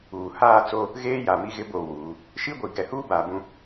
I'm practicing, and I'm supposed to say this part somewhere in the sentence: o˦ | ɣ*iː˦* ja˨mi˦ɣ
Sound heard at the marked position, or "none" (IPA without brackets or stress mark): eː˦